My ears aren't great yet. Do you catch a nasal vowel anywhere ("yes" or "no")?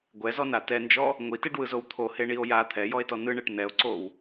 no